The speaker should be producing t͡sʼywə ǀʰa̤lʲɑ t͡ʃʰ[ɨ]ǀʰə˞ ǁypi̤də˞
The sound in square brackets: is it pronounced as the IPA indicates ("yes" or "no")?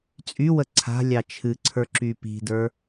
yes